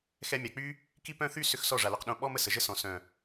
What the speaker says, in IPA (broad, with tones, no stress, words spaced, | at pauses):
xɛ˧mʲa˨k͡py˦ | ki˦pœ̃˦ θy˦sʏ˧x sɔ˦˨ʐa˨lœ˧q ɗõ˧ ɓɔ˦m ə˨sə˨ʒə˦ sɔ̃˨ sœ̃˨